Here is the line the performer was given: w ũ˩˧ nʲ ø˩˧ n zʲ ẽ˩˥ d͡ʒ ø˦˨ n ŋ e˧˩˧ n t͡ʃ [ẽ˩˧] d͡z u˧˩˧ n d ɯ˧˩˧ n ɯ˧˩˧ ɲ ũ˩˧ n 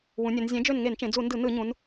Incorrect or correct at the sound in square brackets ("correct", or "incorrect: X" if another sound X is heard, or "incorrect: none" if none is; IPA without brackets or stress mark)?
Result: correct